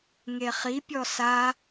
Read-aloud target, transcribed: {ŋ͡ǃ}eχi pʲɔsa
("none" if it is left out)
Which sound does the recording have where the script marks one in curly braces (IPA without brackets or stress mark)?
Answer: ŋ